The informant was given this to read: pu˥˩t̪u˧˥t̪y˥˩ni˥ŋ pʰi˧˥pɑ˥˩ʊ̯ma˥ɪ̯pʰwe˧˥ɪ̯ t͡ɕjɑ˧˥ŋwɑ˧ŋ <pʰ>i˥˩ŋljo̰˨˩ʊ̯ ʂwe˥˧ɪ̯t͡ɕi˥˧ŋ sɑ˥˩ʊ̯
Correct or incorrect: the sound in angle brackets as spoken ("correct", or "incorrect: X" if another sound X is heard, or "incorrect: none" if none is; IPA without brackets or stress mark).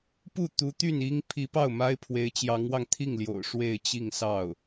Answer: incorrect: t̪ʰ